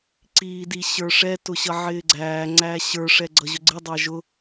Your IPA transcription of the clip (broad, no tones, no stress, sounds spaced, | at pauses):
ǀ iː d i ɕ ə˞ ʂ ɛ t ʊ ɕ ʌ ʕ ɪː ɡ͡ǀ æː ŋ͡ǀ æ ɕ ə˞ ʂ ɛ ɡ͡ǀ ʌ ʑ ʊ ɡ͡ǀ ɪ dˤ æ ʒ ʊ